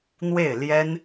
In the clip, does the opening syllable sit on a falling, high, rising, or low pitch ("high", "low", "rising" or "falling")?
falling